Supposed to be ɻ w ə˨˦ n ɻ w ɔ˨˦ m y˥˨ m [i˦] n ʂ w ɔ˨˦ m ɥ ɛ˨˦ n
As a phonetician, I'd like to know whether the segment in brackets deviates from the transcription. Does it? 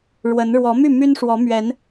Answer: yes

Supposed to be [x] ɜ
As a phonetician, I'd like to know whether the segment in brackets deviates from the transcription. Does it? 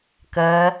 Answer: yes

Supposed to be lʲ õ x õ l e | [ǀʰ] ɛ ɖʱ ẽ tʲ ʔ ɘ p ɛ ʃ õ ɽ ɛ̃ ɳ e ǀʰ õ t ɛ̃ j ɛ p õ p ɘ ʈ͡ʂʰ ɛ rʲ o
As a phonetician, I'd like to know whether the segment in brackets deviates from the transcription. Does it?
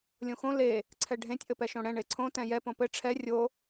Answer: no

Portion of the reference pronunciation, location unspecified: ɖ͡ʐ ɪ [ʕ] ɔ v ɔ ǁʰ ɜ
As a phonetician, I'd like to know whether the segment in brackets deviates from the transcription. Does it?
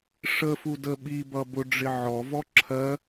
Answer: no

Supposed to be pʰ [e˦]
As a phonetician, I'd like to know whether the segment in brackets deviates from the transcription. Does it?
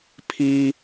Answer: yes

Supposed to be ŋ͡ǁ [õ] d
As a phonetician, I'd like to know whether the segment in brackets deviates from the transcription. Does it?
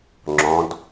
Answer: yes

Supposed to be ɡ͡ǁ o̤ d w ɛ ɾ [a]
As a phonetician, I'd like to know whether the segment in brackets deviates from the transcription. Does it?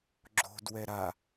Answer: no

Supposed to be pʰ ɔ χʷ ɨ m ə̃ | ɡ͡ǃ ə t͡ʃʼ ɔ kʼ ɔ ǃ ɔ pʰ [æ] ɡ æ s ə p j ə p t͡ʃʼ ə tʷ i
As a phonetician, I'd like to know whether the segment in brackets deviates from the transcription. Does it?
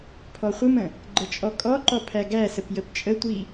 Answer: no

